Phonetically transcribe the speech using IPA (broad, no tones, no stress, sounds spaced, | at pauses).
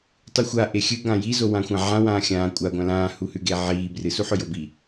tˤ u xʷ a ʔ e xʲ ɨ ɡ ã j i z o w ã xʷ ã ʕ ã w ãː xʲ ãː kʷʼ a ɡʷ ã l ãː h u h ʉ ɡ e ʕ iː b r ɨ s u ħ ɵ j o b i